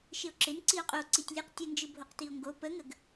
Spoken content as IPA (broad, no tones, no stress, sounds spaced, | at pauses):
ʃ ɪ o̯ ǁ ɪ n ǀ i o̯ qʼ o ǀ i tʲ lʲ ɯ q tʲ ə n d͡ʒ ɯ bʱ o q t i o̯ ŋ ɡ o p ə ŋ ə ɡ